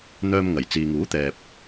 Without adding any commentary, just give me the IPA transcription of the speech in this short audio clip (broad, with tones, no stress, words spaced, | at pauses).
n̪œː˧mŋɐ˨˩j t͡siː˨ŋuː˨˥t̪ɛː˨p̚